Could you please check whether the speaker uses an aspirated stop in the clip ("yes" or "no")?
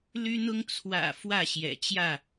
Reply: yes